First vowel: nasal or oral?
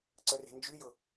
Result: oral